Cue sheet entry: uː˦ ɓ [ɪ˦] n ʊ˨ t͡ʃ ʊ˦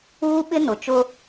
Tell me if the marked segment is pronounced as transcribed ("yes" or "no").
yes